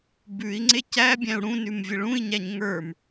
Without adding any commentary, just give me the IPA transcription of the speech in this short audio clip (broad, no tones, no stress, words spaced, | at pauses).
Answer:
bʉi̯ŋ͡ǀe cæbʲæ̃u̯ ɽũnʉmvʲə ɭũi̯ɲæɲ ŋə˞m